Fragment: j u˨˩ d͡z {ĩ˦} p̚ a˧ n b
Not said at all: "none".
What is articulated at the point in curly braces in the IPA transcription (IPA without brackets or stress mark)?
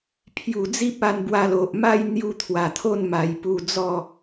i˦